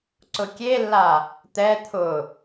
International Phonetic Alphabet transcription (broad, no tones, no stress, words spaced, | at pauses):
ǀʊkʲelːa | t̪ɛ t̪ʰʊ